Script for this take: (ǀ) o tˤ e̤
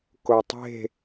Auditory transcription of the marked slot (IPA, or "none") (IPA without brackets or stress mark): k